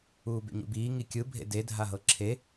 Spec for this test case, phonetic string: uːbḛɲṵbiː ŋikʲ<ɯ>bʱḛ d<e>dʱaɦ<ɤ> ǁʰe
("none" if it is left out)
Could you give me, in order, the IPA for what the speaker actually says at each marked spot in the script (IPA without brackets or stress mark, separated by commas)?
ɯ, e, ɤ